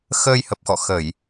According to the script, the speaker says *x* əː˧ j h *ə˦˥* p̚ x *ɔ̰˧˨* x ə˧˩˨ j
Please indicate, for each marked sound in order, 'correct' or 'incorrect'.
correct, incorrect: ə˨˩, correct

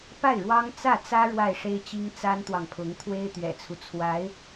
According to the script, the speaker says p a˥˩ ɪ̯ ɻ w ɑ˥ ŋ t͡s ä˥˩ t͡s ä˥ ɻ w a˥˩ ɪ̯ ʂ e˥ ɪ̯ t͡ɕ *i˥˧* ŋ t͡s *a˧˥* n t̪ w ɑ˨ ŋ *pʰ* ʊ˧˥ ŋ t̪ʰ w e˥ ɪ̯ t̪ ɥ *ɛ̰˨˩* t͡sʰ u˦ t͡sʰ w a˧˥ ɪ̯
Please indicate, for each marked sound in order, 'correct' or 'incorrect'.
incorrect: i˥, incorrect: a˥, correct, correct

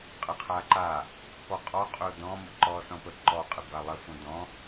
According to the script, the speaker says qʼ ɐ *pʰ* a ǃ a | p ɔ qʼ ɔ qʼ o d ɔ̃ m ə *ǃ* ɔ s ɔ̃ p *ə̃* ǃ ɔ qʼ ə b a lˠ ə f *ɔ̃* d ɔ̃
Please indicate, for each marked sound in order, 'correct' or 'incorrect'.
incorrect: qʰ, correct, incorrect: ə, incorrect: õ

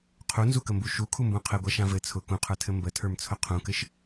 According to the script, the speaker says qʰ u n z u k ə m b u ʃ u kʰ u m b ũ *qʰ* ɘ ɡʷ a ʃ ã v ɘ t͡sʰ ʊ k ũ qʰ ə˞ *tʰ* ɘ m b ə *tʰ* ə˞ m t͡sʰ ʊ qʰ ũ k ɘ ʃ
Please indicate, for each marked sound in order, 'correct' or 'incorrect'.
correct, correct, correct

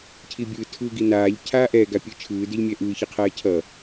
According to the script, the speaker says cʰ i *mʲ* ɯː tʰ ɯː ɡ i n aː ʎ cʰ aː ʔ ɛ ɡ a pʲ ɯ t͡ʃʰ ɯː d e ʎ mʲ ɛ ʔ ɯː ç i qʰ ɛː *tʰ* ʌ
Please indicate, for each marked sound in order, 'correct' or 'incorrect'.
incorrect: bʲ, incorrect: cʰ

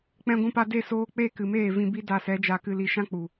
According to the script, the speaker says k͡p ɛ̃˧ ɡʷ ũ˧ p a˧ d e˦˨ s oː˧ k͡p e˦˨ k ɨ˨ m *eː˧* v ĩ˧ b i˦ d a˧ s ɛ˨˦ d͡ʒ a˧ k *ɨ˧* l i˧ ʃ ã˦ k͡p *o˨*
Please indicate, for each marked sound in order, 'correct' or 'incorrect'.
incorrect: eː˦˨, correct, incorrect: u˨

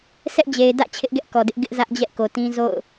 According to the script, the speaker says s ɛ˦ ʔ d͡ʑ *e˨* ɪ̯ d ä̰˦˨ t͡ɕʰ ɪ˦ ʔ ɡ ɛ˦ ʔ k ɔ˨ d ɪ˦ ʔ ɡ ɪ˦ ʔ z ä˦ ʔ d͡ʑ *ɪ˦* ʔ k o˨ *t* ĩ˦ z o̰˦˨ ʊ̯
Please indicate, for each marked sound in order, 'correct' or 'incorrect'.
correct, incorrect: ɛ˦, correct

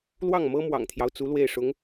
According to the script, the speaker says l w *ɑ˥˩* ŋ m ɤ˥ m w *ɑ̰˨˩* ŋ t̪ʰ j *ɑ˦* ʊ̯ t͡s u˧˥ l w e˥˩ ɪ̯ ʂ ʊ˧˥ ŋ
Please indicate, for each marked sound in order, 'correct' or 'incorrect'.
correct, correct, correct

